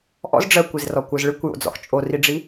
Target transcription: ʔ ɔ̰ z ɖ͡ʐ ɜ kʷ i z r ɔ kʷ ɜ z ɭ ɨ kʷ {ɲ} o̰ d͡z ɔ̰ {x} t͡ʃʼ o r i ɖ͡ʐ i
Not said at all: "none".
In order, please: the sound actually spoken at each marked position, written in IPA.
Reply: j, x

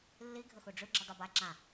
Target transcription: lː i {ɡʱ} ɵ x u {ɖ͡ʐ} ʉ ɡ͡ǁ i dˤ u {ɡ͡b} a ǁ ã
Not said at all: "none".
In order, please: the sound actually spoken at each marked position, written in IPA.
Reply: ɡʱ, ɖ͡ʐ, b

